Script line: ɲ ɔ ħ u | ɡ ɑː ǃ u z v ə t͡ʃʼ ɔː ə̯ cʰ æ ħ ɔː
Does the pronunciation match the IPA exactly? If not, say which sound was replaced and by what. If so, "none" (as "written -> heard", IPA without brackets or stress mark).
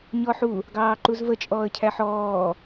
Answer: none